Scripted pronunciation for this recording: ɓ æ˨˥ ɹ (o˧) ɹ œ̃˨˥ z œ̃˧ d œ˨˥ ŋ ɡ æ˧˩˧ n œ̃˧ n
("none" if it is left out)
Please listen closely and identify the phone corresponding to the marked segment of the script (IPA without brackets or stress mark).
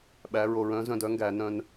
o˧